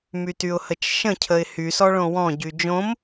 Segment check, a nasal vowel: present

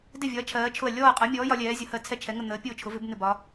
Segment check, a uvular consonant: present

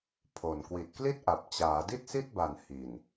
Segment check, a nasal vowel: absent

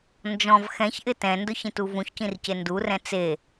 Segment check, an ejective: absent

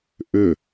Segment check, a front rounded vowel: present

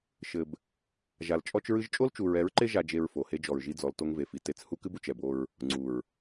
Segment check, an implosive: absent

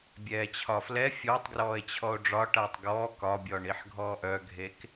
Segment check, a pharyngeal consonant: present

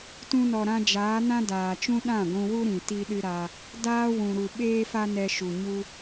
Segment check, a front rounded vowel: absent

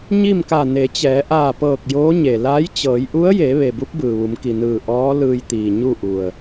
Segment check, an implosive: absent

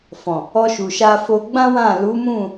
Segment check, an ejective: absent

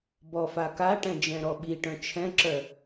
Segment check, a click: present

